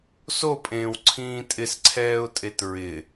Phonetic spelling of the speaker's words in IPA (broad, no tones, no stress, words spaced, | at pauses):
sopʼẽːwǀʰĩː tʼɪsǀʰɛːʊ̯tʼet ɹɪ